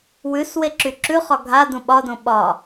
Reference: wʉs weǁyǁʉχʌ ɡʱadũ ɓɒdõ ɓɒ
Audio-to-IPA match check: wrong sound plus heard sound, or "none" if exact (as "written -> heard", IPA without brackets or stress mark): ʌ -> ɒ